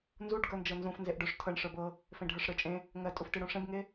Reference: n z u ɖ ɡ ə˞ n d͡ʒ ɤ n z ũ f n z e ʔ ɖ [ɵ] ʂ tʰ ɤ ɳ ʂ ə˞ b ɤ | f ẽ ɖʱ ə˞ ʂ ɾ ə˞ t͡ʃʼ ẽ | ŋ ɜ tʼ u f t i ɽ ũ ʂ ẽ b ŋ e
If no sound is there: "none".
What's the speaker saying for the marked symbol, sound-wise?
ɵ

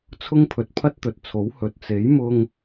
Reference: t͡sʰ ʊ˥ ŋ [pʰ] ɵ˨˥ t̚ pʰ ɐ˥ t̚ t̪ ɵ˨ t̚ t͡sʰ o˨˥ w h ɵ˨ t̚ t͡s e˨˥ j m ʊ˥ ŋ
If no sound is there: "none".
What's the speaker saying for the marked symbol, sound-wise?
pʰ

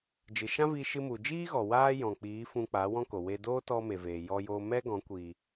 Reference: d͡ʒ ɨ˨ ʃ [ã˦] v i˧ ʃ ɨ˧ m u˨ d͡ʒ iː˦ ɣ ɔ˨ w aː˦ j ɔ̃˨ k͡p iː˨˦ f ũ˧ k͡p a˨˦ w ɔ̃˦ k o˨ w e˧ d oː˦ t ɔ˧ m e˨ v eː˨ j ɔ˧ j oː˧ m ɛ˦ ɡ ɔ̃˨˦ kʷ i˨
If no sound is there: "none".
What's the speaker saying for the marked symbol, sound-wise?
ã˦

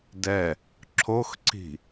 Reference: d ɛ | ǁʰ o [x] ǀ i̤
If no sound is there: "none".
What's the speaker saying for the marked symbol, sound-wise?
x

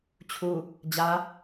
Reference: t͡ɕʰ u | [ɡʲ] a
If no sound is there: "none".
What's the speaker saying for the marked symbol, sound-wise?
d͡ʑ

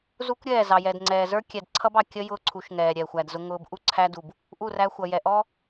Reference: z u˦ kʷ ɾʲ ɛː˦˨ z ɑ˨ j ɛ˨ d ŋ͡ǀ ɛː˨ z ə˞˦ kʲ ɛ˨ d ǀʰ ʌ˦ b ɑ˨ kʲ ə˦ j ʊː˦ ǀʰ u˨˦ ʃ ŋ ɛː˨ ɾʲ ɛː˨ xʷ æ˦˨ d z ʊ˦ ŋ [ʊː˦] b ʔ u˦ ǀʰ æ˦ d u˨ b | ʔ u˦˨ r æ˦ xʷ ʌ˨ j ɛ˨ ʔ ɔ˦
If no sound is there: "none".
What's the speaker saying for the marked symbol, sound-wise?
ʊː˦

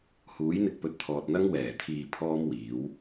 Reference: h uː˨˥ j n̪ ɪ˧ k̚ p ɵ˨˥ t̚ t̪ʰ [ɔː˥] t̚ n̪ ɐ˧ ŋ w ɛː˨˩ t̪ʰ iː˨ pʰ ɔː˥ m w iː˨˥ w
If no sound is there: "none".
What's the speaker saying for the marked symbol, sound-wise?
ɔː˨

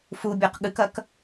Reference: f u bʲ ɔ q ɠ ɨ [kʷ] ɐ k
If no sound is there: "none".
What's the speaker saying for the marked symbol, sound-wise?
k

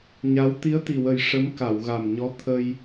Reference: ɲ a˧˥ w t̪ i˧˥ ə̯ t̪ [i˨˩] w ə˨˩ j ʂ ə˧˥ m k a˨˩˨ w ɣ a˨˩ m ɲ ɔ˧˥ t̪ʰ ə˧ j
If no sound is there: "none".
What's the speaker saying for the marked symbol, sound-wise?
i˨˩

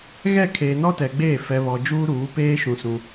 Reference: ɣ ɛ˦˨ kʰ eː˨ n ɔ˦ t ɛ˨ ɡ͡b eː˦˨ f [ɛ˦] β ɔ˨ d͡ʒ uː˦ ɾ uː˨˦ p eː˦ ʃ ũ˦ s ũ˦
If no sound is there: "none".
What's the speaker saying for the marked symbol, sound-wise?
ɛ˨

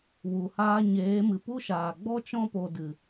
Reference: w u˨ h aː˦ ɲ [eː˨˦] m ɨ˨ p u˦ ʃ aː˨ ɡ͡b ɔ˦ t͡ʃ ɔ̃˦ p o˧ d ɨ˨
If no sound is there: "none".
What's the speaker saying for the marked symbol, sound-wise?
eː˨˦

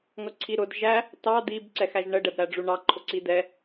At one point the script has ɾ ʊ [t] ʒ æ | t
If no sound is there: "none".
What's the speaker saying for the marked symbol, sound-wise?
d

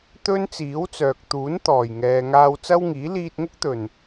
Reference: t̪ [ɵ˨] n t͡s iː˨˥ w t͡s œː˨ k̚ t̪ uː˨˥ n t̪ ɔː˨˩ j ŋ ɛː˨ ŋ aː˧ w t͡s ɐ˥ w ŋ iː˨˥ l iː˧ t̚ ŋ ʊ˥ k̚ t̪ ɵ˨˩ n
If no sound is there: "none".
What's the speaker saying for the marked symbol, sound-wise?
ɵ˥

